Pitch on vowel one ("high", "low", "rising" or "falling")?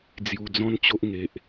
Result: low